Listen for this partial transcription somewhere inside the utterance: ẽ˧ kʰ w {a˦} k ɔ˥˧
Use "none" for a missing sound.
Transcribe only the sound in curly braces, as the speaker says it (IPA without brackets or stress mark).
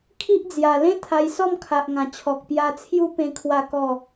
a˥˧